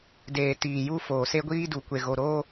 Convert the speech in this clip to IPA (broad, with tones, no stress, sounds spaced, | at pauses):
d eː˨ t iː˨ j u˦ f oː˨ s e˦ ɡʷ iː˦ d u˨ kʷ e˨ ɣ o˨ ɾ oː˦